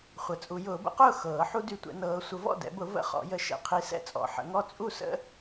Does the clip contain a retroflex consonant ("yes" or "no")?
no